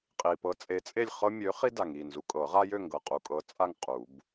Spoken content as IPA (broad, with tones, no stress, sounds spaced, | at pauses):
qʼ i˨ p ɤ˨˥ t͡sʼ e˨˥ t͡sʼ e˥˨ lʲ χ ɤ˦ mʲ ø˨˥ χ i˦ d a˨ ŋ i˥˨ n z u˨ kʼ ɤ˨˩˦ ʁ a˦ j ø˥˨ ŋ ɡ ɤ˨ qʼ u˨ kʼ ɤ˨˥ t͡sʼ a˥˨ ŋ qʼ u˨˩˦ b